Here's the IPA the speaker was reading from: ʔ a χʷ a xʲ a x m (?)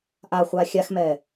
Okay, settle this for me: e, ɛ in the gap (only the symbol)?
ɛ